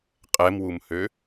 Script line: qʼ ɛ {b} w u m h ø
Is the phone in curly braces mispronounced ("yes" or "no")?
yes